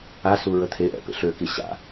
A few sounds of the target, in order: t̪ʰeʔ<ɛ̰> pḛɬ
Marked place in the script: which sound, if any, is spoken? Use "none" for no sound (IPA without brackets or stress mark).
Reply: ɛ̰